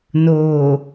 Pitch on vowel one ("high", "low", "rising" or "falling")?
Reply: low